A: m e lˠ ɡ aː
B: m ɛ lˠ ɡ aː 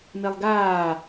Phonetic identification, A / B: A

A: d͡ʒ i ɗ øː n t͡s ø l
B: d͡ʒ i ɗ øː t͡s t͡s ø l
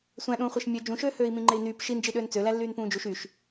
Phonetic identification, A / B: A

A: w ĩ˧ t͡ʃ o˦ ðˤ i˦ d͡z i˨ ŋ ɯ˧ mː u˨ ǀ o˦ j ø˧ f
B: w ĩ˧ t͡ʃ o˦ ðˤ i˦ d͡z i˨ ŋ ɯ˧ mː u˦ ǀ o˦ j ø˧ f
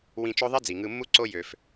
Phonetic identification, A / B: B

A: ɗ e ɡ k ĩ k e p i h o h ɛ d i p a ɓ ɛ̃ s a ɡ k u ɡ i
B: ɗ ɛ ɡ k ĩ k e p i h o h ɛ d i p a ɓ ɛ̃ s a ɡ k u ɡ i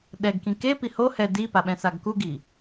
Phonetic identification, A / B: B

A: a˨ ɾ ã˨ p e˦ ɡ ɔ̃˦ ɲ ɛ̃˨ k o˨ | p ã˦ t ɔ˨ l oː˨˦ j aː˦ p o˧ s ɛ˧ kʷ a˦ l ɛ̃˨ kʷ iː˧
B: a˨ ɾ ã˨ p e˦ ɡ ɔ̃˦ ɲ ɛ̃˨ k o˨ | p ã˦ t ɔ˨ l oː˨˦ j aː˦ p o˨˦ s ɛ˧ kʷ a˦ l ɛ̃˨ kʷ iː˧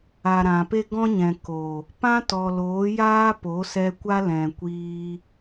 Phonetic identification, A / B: B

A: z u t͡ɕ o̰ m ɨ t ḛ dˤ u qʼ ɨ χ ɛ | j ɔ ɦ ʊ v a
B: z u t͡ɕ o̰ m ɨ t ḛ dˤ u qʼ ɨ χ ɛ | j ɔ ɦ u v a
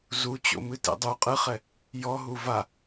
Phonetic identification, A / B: B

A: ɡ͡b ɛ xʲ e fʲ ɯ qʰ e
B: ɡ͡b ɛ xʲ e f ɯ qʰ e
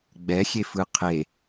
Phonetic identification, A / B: B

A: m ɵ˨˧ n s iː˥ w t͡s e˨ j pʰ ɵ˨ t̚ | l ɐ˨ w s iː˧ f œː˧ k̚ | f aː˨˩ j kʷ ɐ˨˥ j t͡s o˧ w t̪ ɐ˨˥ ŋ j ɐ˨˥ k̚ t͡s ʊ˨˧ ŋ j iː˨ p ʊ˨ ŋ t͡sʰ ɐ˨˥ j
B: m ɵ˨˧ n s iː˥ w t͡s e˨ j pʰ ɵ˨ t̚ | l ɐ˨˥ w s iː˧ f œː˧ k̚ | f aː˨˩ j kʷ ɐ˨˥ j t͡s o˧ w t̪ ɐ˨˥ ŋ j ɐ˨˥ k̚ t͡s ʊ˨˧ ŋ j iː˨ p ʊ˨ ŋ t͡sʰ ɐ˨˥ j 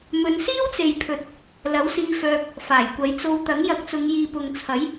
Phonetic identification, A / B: B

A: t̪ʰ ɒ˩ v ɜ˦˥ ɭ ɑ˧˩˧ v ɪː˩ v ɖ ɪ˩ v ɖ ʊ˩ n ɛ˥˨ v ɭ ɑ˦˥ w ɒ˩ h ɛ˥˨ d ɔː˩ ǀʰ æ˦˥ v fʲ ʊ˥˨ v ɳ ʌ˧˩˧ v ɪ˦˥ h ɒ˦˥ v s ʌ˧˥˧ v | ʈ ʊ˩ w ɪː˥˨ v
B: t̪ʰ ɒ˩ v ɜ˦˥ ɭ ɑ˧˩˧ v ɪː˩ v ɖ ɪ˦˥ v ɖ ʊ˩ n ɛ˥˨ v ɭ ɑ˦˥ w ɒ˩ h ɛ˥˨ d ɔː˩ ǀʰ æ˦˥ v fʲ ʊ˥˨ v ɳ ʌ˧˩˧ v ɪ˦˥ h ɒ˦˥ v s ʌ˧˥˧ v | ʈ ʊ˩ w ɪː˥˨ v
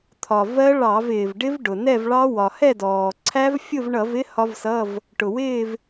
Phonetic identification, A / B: B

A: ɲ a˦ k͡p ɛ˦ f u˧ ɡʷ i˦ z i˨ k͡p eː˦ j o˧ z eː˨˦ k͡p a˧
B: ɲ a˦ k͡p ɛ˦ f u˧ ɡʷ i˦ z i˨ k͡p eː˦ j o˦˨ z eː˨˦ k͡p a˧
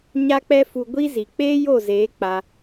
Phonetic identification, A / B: B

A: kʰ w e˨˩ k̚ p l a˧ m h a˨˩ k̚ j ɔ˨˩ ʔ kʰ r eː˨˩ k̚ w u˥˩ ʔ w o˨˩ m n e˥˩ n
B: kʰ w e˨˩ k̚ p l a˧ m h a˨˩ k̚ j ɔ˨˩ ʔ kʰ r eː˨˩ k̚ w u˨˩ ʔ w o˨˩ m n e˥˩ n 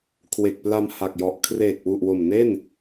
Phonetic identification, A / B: B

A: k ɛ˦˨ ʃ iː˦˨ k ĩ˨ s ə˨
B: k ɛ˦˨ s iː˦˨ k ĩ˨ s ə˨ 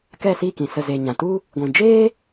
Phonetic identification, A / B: B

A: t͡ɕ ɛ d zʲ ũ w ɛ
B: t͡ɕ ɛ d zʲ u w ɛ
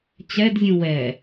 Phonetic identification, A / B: A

